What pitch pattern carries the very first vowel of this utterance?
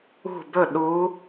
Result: falling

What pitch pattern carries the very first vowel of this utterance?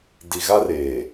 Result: low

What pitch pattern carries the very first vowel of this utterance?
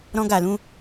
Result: high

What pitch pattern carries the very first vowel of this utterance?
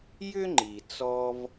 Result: high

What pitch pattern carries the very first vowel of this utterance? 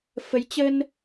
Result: rising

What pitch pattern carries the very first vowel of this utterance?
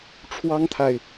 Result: high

